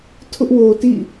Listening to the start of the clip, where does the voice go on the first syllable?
high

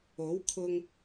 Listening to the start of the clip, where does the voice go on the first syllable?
rising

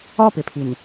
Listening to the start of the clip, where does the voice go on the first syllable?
falling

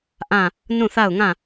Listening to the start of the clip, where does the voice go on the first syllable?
falling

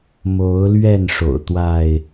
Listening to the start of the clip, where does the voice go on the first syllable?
rising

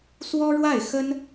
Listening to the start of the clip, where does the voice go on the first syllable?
high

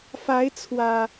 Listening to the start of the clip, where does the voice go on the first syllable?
rising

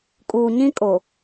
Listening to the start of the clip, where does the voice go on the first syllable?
low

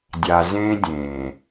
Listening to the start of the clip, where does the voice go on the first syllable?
low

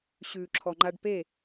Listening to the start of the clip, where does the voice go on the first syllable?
low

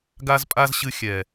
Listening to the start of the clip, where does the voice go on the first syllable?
high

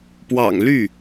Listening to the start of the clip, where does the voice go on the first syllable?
low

